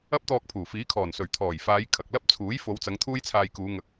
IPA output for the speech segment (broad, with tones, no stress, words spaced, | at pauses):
ɐ˥p̚t̪ɔː˧k̚pʰuː˨˩ fiː˨˥kʰɔː˨˩nsɵ˨˩ɥ t̪ʰɔː˨˩jfaː˨˧j kʰɐ˨k̚lɐ˥p̚t͡sʰuː˨˥j fo˨˧wt͡sɐ˨˧ŋ t̪ʰuː˥jt͡sʰaː˧jkuː˨˧ ŋɐ˨k̚